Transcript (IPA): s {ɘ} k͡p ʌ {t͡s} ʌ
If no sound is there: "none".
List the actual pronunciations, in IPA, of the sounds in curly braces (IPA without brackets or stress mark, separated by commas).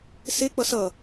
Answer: e, s